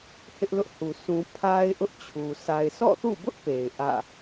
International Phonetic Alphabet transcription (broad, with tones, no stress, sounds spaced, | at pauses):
h ɪ˦ ʔ l ʊ˦ ʔ h u˨ s ũ˨ pʰ a˦ ɪ̯ ʔ ʊ˦ ʔ t͡ɕʰ u˨ s a˨ ɪ̯ sʰ ɔ̰˦˨ θ ṵ˦˨ b ʊ˦ ʔ p e˨ ɪ̯ ʔ ä̰˦˨